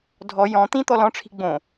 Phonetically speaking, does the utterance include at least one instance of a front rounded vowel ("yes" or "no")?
no